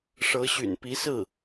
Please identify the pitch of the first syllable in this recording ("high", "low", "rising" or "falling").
rising